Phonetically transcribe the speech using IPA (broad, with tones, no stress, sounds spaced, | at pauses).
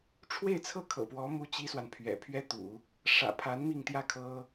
ʈ͡ʂʰ w e˥˩ ɪ̯ t͡sʰ ɤ˥ kʰ ɤ̰˨˩ p w ɔ˧˥ m u˥ t͡ɕ i˥ s w a˨ n pʰ ɥ ɛ̰˨˩ pʰ ɥ ɛ˥ t̪ ṵ˨˩˦ | ʂ ä̰˨˩ pʰ a˧˥ n m i˥˧ ŋ t̪ j ä˥˩ kʰ ɤ˥